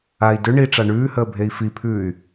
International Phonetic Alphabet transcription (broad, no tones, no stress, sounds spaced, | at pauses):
a i̯ d ʏ ɳ i ʈ͡ʂ a ɳ ʉː h əː bʱ e i̯ f i pʰ ʉː y̯